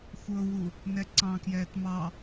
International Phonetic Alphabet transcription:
xʷ ɤ w u | n ɛ ǀ ɑ̃ k j ɛː t m ɑ

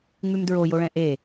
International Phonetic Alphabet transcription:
ŋ͡m ʉ m d ɹ o j o ɭ ɛ̃ ʔ e

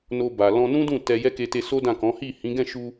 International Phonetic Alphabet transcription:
n o˧ b a˨ l ɔ̃˧ n ũ˦ d ũ˦˨ t ɛ˧ j ɛ˦ k e˧ t e˧ s o˦ d ã˦˨ k ɔ̃˨˦ h i˦˨ h ĩ˨˦ ɡ ɛ̃˦˨ ʃ u˧

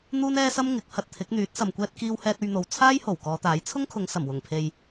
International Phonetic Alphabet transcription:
n̪ uː˥ n ɛː˥ s ɐ˥ m ŋ ɪ˨˥ k̚ h ɐ˨ t̚ t̪ʰ ɪ˨˥ k̚ n̪ yː˨˥ t̚ s ɐ˨ m kʷ ɛː˧ t̚ k iː˧ w h ɛː˧ t̚ ɵ˧ ɥ n̪ o˨ w t͡sʰ aː˥ j h o˨˩ w k ɔː˨˧ t̪ aː˨˥ j t͡sʰ ʊ˥ ŋ kʰ ʊ˨˧ ŋ s ɐ˨˩ m w ʊ˨˩ ŋ pʰ e˨ j

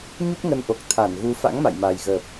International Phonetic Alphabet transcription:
ɲ u˦˥ k̚ ŋ ə˨˦ n ʔ o˨˩ k̚ t̪ʰ a˧˩ n ɣ u˨˦ f a̰˧˥ ŋ m a̰˧˨ j m a˨˩ j ɣ əː˨˩ p̚

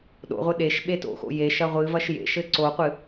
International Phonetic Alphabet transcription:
ɗ o̰ ʁʷ ɘ ɗ e ʃ ɓ e t o̰ x o̰ j e ʃ ɐ ʁʷ ɨ v ɐ ʃ j ḛ ʃ ɘ ǀ o qʷ ɨ

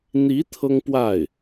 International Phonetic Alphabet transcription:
n̪ i˧˥ t̪ʰ ɤ˥ ŋ p w a˥˩ ɪ̯

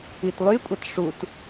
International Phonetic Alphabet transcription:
i t lˠ y kʷʼ ʌ t ʂ u t

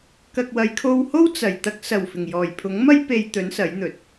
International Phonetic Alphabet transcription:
k ɐ˨ k̚ w ɐ˨˧ j kʰ o˧ w h o˥ w t͡s ɐ˨˩ j t̪ ɐ˧ k̚ s ɐ˨˩ w f ɪ˨˩ ŋ j ɔː˨˩ j pʰ ʊ˨˥ ŋ m ɐ˥ j p e˧ j t̪ ɵ˨˥ n s ɐ˨˥ j n̪ ɵ˨˥ t̚

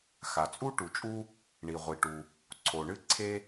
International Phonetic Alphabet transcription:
x a˩ t͡sʼ u˥ ʈ u˩ t͡ʃʼ u˥ | ɳ i˩ ʁʷ i˩ ʈ u˩ | ǀʰ o˩ ɳ ɨ˥ ǀʰ e˥

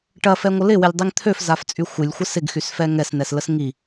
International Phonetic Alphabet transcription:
ʈ ɐ f ɛ ŋʷ ə l ɪ w ɪ lʲ dˤ i ŋ t̪ʰ ø f z a f t͡sʼ y xʷ ɪ lʲ xʷ ə s ɪ ɡ x y s f ɛ ŋ ɛ s n ɛ s l ə s ŋ i

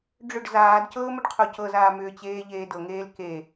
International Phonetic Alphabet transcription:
ɖ͡ʐ ʏ ɖ z aː d c ɤː m ʏ ɖ qʰ o c ɤ z aː m ʏː t͡ɕ eː ʎ eː d ɤ ŋ eː l k e

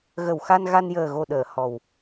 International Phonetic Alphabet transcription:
ɣ ə˨˩ w x a˧ n ɣ a˧ n j əː˨˩ ɣ o˨˩ ɗ əː˨˩˨ h ɔ˨˩ w

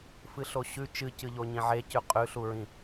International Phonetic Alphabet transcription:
f ɨ ɬ o ɕ ʉ t͡ʃ ɨ c ɨ ʎ o ɲ ĩ ʕ e c ʉ qʼ ʉ ɬ u ɹ ĩ

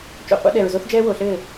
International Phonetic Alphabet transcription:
t͡ʃ o̰˨ qʷ a̰˦ ɗ ɛ˨ ɹ z o˦ θ d͡ʒ ɛː˦ w o˨ ɬ ɘː˦˨

